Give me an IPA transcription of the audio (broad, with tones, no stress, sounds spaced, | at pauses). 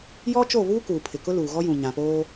j ɔ˦ t͡ʃ o˦˨ β uː˦ k uː˨ pʰ ɪ˨ k ʊ˦ l uː˨ ɣ ɔ˦ j ũ˨ ɲ ã˨ p oː˦